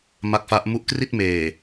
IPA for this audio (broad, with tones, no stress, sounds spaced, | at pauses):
m a˦˥ k̚ f a˦˥ ʔ m u˦˥ ʔ k r i˥˩ t̚ m eː˨˩